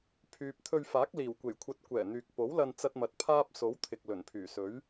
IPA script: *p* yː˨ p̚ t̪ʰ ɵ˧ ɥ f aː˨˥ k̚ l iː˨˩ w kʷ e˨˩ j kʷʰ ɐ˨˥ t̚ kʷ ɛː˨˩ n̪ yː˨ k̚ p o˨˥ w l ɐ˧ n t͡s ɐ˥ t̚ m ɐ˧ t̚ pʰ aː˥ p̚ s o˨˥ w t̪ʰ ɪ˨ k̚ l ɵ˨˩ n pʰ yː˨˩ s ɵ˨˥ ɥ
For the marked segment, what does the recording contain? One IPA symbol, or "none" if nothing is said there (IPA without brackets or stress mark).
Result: pʰ